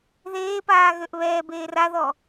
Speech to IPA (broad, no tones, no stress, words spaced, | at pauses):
ðeːpaː ɣøʔβɛːbeːr aðɔ